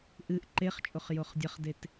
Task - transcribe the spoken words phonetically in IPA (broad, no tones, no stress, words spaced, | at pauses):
ʔɨʔ ǃeχt͡ʃʼoχ joχdʲɐχdet